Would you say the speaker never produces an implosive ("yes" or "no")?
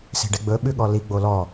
no